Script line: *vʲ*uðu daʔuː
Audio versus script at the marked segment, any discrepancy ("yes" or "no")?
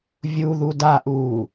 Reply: no